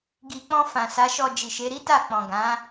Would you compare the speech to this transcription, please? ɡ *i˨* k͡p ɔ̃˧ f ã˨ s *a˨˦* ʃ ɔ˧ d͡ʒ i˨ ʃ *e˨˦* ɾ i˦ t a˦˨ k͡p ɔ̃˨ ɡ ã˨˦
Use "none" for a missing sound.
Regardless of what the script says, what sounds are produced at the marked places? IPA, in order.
i˨, a˨˦, e˨˦

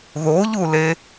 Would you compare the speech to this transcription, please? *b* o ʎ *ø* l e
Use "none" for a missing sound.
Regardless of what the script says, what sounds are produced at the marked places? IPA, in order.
ð, u

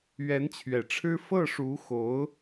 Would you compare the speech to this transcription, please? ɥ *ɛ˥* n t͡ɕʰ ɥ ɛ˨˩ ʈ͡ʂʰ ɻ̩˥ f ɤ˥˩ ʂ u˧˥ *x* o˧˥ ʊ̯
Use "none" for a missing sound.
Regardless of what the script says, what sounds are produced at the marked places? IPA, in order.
ɛ˧˥, x

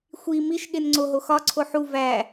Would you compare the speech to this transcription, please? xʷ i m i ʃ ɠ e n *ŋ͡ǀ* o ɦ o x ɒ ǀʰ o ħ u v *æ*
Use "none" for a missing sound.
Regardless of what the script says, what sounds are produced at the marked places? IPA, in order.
ŋ͡ǀ, æ

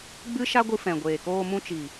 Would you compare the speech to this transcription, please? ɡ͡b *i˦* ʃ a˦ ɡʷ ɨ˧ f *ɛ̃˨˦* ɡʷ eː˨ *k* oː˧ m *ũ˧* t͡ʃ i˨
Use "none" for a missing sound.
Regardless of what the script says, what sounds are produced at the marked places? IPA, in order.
ɨ˦, ɛ̃˨, k, ũ˧

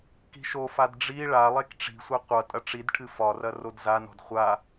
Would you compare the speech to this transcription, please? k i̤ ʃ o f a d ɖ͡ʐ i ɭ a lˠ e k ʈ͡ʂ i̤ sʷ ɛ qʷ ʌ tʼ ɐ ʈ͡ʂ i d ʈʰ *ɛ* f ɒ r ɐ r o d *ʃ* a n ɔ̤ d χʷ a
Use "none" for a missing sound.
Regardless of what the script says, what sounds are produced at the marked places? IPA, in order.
ɨ, z

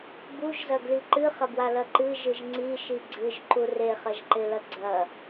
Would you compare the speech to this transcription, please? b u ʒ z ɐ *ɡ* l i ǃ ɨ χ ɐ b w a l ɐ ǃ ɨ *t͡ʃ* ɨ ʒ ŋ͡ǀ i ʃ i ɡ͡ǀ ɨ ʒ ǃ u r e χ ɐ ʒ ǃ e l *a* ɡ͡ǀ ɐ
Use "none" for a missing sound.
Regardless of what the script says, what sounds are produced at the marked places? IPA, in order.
ɡ, ʒ, ɐ

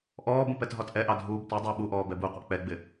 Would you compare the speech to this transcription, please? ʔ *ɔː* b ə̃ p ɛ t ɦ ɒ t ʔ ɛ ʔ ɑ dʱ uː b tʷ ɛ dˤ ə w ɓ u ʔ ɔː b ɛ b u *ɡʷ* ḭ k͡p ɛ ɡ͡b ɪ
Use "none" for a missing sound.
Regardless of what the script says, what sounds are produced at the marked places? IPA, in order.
ɔː, qʷ

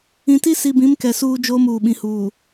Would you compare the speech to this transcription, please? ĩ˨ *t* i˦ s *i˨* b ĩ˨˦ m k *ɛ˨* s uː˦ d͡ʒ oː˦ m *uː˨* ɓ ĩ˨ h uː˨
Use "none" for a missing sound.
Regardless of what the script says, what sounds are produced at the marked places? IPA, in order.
t, i˨, ɛ˨, uː˨

